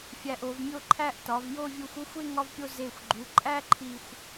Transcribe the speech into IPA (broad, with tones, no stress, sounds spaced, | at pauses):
fʲ æ˧ ʔ o˩˧ v mʲ o˥˧ ǃʰ æ˥˧ ʔ t ɒ˩˧ v j o˥˧ vʲ u˧ xʷ o˥˧ xʷ e˥˧ ŋ ɒ˧ v pʲ o˧ z e˧˩ xʷ ɡ͡ǃ u˩˧ ǃʼ æ˥ ǃʰ i˧˩ xʷ